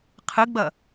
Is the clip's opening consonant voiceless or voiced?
voiceless